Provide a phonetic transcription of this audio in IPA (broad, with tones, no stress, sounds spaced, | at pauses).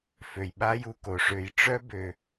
f ø˩ j ɓ a˥ j u˨ k o˩ ʂ ø˨ j ʈ͡ʂ œ˥ b ø˩